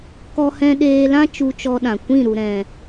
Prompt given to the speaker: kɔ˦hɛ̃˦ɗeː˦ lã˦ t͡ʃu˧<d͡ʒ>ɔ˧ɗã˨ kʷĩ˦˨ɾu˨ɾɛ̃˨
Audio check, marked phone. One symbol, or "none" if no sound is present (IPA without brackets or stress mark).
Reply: t͡ʃ